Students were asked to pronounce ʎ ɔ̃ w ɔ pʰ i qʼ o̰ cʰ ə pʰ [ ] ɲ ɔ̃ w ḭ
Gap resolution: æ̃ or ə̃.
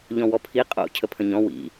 ə̃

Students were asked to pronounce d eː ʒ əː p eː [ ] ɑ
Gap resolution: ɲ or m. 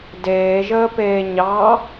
ɲ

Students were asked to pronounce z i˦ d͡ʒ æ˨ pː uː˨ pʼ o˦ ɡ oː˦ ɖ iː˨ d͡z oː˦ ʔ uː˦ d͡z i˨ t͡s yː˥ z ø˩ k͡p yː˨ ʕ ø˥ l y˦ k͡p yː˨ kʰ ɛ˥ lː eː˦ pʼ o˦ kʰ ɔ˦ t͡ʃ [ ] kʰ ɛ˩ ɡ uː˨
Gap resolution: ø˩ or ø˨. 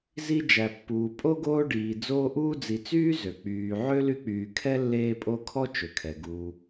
ø˩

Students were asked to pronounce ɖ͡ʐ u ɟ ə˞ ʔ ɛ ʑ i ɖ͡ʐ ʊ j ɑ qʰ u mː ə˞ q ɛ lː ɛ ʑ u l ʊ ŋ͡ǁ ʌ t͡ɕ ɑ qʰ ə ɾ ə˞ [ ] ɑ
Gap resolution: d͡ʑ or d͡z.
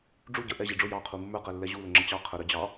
d͡ʑ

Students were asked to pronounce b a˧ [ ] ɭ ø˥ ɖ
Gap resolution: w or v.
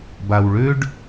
w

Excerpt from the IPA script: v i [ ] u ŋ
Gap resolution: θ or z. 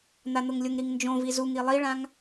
z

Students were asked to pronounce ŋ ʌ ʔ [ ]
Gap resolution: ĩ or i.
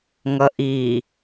i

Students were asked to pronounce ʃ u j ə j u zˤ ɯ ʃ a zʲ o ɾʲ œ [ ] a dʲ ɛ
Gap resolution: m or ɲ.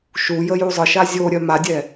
m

